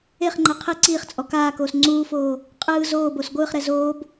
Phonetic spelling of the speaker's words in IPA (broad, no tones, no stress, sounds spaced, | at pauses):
e χ ŋ͡ǃ ɛ qʰ e ǀ iː χ t͡sʼ ɔ k aː k oː s ŋ͡ǀ uː f oː | qʼ ɯː z oː b o s ɡʷ ɯː χ ɾ ɛ z oː b